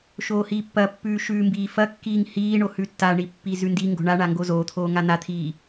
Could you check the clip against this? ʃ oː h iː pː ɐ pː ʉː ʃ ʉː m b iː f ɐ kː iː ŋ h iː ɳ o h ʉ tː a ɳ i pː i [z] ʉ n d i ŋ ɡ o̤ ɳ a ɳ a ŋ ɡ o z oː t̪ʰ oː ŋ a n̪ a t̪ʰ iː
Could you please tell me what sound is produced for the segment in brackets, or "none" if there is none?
z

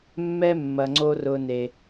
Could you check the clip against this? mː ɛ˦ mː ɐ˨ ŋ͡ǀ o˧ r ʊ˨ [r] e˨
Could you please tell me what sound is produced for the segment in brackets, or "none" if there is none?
n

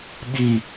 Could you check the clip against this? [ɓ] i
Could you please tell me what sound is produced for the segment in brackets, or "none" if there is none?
ɓ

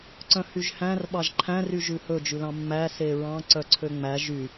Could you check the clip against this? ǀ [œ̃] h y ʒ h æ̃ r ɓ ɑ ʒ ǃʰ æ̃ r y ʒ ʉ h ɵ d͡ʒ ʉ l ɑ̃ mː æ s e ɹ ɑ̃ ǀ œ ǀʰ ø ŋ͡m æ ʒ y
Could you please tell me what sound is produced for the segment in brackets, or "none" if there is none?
œ̃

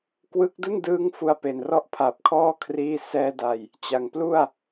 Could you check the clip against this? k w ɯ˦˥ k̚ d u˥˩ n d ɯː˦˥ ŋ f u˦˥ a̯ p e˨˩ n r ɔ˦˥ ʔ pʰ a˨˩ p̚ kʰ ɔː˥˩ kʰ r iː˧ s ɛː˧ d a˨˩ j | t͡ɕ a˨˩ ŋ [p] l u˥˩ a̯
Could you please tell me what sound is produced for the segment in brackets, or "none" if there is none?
p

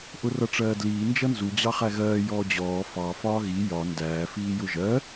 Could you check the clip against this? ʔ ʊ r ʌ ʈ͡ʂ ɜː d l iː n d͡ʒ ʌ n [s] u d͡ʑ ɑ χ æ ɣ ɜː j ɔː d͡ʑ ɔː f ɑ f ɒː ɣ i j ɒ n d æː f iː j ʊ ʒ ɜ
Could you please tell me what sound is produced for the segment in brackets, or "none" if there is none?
z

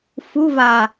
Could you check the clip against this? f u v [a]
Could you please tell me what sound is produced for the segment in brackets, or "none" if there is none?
a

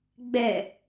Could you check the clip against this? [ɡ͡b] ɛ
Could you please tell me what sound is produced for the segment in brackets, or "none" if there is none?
ɡ͡b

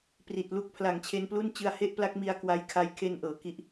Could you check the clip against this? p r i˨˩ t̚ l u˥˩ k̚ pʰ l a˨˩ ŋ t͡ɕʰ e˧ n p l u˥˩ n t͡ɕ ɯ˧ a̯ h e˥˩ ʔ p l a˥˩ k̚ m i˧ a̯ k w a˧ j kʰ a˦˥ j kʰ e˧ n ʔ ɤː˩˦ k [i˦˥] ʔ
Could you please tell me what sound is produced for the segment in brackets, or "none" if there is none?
i˦˥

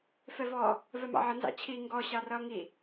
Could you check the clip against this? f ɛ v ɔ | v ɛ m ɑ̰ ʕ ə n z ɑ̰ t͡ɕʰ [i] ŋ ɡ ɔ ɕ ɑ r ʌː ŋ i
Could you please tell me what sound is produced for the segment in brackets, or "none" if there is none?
i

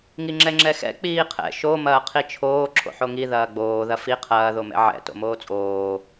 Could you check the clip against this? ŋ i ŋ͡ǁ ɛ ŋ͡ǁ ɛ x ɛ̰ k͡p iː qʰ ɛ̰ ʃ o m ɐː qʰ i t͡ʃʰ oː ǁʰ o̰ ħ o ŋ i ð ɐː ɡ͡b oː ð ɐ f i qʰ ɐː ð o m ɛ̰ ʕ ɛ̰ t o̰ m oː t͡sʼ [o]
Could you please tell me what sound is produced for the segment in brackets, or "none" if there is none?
oː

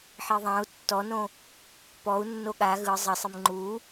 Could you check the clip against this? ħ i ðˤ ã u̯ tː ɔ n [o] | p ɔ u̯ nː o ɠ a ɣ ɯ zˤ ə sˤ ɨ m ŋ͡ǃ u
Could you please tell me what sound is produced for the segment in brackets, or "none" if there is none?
õ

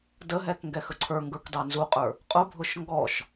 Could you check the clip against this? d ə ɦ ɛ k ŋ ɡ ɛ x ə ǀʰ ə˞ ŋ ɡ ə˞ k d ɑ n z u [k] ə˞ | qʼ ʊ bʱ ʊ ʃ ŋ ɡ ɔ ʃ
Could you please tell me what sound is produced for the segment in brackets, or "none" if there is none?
qʼ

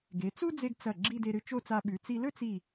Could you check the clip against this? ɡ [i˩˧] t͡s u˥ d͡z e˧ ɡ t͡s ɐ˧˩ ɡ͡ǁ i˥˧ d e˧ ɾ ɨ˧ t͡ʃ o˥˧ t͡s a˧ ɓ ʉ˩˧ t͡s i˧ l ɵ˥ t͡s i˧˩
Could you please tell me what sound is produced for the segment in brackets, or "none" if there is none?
e˩˧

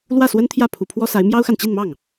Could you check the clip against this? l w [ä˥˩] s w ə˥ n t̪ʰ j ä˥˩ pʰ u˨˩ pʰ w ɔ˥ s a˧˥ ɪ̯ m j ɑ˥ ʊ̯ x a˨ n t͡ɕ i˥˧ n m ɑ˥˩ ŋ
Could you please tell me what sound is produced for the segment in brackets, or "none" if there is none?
ä˥˩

